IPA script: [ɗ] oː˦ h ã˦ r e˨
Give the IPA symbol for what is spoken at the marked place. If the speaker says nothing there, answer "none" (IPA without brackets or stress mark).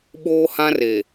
ɓ